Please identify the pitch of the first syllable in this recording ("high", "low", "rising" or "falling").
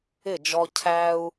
falling